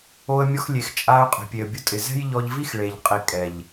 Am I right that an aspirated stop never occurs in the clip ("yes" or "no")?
yes